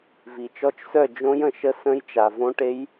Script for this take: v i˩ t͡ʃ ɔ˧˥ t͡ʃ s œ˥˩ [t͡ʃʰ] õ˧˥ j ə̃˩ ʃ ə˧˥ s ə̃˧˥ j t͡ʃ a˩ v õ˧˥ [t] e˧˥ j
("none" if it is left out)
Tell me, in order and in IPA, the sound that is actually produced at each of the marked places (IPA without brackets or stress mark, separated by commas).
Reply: d͡ʒ, ʈ